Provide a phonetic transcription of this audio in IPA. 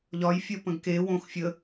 ʎɒjfʲəpə̃ɡ ke wõx fʲə

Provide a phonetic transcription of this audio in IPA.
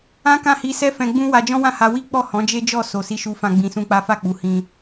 ã˦kã˦˨hi˧sɛ˦ fɛ̃˧ɡ͡bũ˦wa˧ d͡ʒɔ̃˦wã˦˨ha˧ wi˦k͡pɔ˦˨ hɔ̃˨˦d͡ʒe˦d͡ʒɔ˦˨ so˨si˨˦ʃu˧fã˧ ɡ͡bĩ˧sũ˦k͡pa˦ fa˦˨k͡pu˨hĩ˧

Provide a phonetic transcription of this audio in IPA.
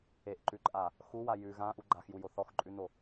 eʔǃʉǃʼa | xuwa jʉ ɣãʔu ɡ͡ǃaxjujo θɔxǃʼʉno

